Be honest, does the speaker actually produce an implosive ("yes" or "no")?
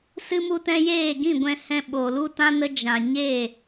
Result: yes